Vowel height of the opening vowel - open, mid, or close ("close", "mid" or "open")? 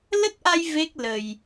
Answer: mid